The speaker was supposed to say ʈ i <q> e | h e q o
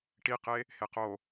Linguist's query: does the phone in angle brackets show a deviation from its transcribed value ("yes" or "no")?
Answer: no